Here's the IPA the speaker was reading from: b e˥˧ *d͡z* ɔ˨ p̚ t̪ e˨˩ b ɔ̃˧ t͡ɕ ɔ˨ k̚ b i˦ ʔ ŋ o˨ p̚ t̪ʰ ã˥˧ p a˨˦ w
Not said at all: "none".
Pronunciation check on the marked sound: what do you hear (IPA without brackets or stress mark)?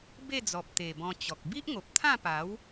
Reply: d͡z